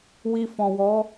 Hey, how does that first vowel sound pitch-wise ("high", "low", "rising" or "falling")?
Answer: low